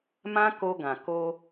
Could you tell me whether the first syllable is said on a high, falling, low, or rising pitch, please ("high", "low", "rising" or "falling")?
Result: high